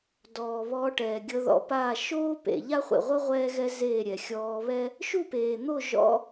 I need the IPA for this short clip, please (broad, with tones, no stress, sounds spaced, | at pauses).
d ɔː˨ β ɔː˧ ʈ ɛː˨ ɡʲ ɤ˧ ð ɔ̰˧ p a˦˨ ʃ oː˦ p ḛ˨ ʎ a˦ χʷ ḛ˨ ʁʷ ɤ˦ ʁʷ ɛː˦ ɣ ɛ˦ z eː˦˨ ɾʲ ɛ˨ xʲ ɔː˧ β ɛ˦ | ʃ u˦˨ p eː˨ n̪ o˦˨ ʒ ɔ̰˦